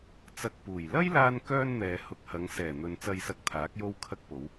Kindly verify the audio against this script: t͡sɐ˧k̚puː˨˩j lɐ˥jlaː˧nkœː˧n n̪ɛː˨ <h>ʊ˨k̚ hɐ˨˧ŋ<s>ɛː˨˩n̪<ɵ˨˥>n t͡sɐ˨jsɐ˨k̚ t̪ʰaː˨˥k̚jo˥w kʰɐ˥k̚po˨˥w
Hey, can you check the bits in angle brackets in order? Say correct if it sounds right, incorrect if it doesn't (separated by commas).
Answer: correct, correct, incorrect